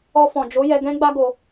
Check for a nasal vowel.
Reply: present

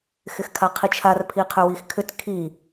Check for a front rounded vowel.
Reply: present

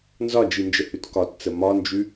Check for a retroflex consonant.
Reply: absent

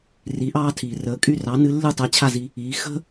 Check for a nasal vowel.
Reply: absent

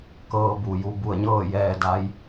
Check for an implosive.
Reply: absent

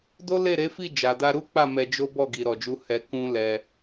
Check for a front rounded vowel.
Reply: absent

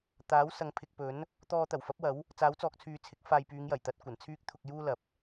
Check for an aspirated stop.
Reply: present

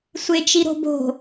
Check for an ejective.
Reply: absent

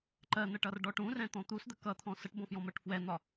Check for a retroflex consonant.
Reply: present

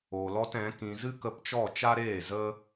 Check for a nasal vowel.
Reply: present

